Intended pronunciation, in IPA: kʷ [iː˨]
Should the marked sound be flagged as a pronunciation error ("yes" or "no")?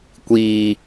yes